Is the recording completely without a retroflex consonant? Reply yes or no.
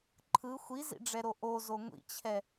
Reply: no